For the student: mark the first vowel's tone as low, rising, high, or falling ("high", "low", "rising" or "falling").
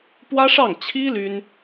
high